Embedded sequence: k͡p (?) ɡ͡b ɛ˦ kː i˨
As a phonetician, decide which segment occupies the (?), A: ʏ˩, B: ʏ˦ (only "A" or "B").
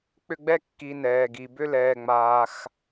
B